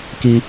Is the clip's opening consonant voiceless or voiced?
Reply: voiceless